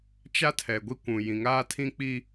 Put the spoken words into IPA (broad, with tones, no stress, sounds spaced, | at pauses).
t͡ʃ a˦ tʰ ɛ˨ ɡʷ i˦ kʷ ũ˨ j ĩ˨ ŋ aː˦ tʰ ĩ˦ k͡p i˦